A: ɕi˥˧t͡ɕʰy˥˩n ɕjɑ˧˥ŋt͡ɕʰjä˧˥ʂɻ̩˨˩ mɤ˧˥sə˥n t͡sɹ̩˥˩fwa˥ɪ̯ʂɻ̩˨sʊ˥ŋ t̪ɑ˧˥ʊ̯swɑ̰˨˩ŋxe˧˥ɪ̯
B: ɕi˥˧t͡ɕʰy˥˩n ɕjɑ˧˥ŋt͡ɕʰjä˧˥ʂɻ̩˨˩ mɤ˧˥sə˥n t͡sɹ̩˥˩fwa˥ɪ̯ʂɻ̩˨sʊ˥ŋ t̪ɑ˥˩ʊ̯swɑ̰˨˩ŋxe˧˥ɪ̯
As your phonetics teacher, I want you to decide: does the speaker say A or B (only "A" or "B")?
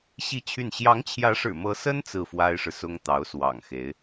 A